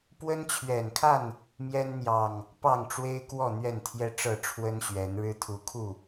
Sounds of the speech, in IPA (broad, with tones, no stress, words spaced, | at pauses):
pwə˦nt͡ɕʰɥɛ˨˩nkʰa˥˨n | mjɛ˦nn̪jɑ˨˩ŋ | pɑ˥˨ŋʈ͡ʂwe˦ɪ̯kwɔ˥˨ n̪ɥɛ˥˨nt̪ʰjɛ˦ʈ͡ʂɤ˥˨ʈ͡ʂʰwə˦n ɕɥɛ˨˦nɻɻ̩˦ t̪ʰu˨˦kʰu˥˨